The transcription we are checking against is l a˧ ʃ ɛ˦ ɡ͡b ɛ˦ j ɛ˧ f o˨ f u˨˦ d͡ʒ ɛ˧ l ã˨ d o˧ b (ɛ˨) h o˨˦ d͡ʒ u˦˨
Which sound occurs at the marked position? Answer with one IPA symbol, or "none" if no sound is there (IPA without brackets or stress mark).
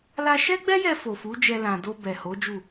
ɛ˨